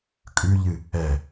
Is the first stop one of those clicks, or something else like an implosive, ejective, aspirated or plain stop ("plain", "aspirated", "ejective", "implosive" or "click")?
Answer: ejective